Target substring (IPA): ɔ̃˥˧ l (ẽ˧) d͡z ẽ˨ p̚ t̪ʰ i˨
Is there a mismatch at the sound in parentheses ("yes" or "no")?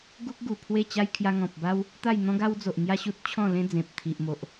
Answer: yes